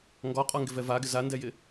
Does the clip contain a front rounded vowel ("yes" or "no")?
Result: no